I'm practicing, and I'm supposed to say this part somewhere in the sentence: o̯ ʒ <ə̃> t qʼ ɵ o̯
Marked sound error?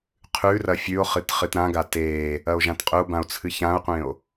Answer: yes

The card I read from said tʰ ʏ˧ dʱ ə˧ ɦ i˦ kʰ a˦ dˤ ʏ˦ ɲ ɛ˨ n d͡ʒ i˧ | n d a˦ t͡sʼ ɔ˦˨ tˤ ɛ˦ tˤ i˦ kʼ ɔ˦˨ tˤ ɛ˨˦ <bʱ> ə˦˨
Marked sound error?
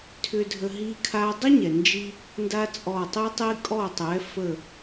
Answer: yes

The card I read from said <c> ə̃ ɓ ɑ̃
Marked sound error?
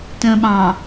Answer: yes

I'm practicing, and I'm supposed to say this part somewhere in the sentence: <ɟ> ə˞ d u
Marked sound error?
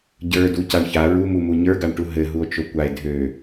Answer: no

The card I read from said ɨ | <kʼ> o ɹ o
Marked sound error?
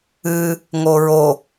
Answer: yes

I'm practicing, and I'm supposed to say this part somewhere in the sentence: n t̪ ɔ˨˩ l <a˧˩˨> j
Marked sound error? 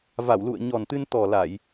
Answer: no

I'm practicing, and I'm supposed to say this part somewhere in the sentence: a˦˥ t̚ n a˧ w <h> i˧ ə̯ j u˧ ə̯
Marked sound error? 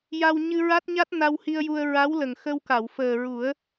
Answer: no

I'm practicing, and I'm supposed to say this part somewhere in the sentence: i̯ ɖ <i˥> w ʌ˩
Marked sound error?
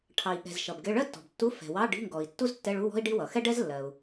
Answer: no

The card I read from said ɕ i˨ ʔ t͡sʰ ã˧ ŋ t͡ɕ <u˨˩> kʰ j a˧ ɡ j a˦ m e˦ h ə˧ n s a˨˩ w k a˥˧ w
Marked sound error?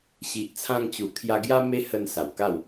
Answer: no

